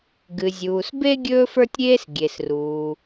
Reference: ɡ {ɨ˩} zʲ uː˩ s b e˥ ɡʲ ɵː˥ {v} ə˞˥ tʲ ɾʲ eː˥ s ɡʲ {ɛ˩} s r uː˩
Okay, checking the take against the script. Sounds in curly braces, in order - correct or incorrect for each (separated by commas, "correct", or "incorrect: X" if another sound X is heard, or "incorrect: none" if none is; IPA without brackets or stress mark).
correct, incorrect: f, incorrect: e˩